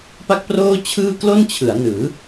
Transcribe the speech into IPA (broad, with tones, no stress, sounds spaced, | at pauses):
p a˥˩ k̚ p r oː˥˩ t͡ɕʰ ɯː˥˩ k l o˥˩ n t͡ɕʰ ɯ˩˦ a̯ n ɯː˩˦